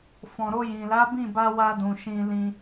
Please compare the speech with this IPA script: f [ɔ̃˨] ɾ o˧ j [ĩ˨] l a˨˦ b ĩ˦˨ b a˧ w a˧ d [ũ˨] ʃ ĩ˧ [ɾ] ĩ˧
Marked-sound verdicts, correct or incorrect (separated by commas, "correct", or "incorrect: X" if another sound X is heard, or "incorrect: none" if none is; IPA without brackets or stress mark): correct, correct, correct, incorrect: l